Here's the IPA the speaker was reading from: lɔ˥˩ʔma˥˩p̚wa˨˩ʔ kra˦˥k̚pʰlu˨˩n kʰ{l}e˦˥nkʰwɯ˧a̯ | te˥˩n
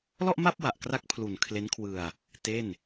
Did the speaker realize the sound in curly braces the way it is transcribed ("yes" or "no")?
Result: yes